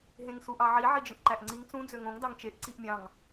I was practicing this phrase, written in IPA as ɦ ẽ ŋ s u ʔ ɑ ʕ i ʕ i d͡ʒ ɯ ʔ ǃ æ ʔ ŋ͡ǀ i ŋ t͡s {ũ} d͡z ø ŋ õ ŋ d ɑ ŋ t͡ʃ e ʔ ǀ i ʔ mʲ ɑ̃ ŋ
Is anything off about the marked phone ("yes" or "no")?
no